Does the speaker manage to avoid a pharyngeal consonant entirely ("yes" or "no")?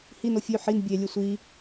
no